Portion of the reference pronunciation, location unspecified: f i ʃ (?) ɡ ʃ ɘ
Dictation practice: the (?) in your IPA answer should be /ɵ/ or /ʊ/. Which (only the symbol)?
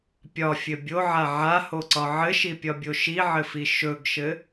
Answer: ɵ